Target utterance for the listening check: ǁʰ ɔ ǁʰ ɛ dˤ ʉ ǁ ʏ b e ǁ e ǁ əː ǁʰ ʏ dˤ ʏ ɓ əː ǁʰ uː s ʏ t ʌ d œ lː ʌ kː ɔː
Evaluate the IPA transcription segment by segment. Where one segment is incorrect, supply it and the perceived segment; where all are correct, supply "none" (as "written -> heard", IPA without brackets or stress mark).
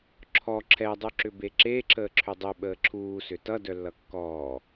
none